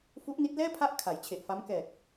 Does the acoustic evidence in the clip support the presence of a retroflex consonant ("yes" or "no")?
no